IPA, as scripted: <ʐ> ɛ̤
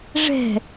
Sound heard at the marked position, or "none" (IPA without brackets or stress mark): ʐ